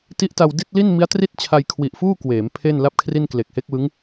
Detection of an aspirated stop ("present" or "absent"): present